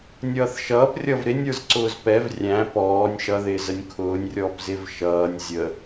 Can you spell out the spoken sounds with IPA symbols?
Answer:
nʲ ʌː θ ʃ ʌː p rʲ ʌ v ɾ ɪ nʲ ə˞ z ǀ ʊː z p ɛ v rʲ æ̃ p ɔː nʲ ʃ ʌ ð ɪː z ə nʲ kʰ ʊː nʲ rʲ ɔː p z ɪ v ʃ ʌː nʲ zʲ ə

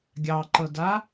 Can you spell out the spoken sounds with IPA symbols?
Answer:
ɡʲ ɑ ǃ ɤ d a

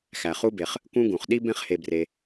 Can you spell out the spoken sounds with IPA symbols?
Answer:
x æ˩ χ u˦ b e˩ χ | k ũ˦ ɡ ũ˩ χ ɗ i˥ b ẽ˥ χ h e˨ b r e˨

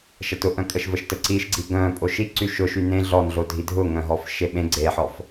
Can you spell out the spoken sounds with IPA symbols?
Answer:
ʃ ɐ t ʊ ʔ œ̃ kʼ ə ʃ v ə ʃ t ə ǀ i ʃ ɡ͡ǀ i ɡ œ̃ pʼ o ʃ i ǀ y ʃ ʊ ʃ y n ẽ ɮ ɔ n ɮ o dʱ i dʱ ʊ ŋ œ̃ ɦ ɔ f ʃ e ɓ ẽ ɡ͡ǀ e ħ ɔ f

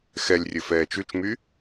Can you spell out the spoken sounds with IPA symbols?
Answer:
x ɛ lʲ rʲ ɘ f ɛː t͡ʃ ʉ t͡ʃ m y

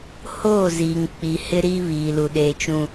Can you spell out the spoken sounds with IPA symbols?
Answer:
h oː˦˨ z iː˨ ŋ k͡p i˨ h ɪ˦ ɾ iː˦ β iː˨ l u˨ ɗ eː˨ t͡ʃ ũ˨

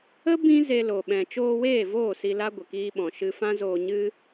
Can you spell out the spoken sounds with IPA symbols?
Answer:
ə˦ b ĩ˦ z e˧ l o˨ ɓ ɛ̃˨ t͡ʃ oː˧ w eː˦˨ v oː˦˨ s i˧ l a˦ ɡʷ ə˨ k iː˧ ɓ ɔ̃˨ ʃ ɨ˧ f ã˦ z oː˧ ɲ ɨ˦

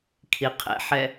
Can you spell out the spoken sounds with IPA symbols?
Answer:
kʰ i qʰ ɛ̰ ħ ɛ

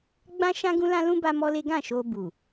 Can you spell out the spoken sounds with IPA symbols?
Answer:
ɡ͡b ã˦ ʃ ã˦ ɡ ũ˦ l ã˦ l ũ˦ b a˦ m ɔ˦ l e˦ ɡ ã˦˨ ʃ o˧ b u˨

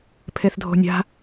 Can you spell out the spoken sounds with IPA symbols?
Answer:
pʰ e θ dʱ o̤ nʲ a̤

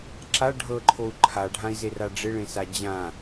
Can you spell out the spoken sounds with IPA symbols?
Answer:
ǁ a ɖʱ ɤ ǃʰ o u̯ ǃʰ a ɖʱ ã i̯ z e r a ɖ͡ʐ ɪ ɭ ẽ s a d͡ʑ ã

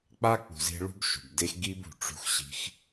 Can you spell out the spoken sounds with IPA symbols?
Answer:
k͡p a˦ k͡p ṳ˨ z e̤˧ ɭ ṳ˦ b ʃ ṳ˨ b d e˦ x ɡ i˦ b ṳ˨ ʈ͡ʂ ṳ˧ x ɕ i̤˧ x

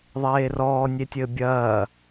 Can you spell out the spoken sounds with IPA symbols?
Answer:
ðˤ eː r ɔː nʲ e tʲ ɘː bʲ ɐː

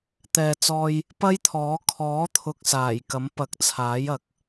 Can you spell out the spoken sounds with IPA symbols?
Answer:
t̪ ɛː˨ t͡s ɔː˧ j | p ɐ˥ j t̪ʰ ɔː˨˥ kʰ ɔː˨˥ t̪ʰ ʊ˨ k̚ s aː˨˩ j k ɐ˨˥ m p ɐ˨˥ k̚ t͡sʰ aː˨˥ j ɐ˨˥ k̚

